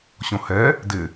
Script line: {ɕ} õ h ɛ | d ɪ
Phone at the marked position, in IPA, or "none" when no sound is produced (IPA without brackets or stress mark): ɕ